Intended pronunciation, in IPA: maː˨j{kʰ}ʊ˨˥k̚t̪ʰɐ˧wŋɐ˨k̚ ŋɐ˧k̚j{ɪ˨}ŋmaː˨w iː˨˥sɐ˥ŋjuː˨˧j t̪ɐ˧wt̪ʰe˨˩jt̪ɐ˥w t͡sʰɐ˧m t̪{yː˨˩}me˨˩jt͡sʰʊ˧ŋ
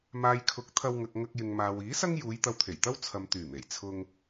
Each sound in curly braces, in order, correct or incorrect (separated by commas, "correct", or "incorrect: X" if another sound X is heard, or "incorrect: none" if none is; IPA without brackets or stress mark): correct, correct, correct